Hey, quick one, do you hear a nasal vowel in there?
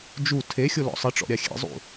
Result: no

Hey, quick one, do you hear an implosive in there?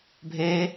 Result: no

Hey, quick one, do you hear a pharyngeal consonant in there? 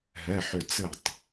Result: yes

